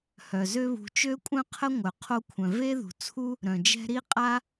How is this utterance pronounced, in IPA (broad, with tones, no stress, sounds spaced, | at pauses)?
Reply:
h œ˩ z ø˦ β ṳ˨ t͡ʃ ø˥ kʷʼ œ̃˥ qʰ ə˥ ŋʷ œ˩ qʰ o˦ kʷʰ œ̃˩ v e˥ ð ṳ˩ t͡sʰ u˥ | ɾ œ̃˩ d͡ʒ ɛ̤˦ ɾ i˥ qʼ a˥